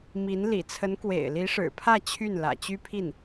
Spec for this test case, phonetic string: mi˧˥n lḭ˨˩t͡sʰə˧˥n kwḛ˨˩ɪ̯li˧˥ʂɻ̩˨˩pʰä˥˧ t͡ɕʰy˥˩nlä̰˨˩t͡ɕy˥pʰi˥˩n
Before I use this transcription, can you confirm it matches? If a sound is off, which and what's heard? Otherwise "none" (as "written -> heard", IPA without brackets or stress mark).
none